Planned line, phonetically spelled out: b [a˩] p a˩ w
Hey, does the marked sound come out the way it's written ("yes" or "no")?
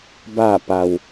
no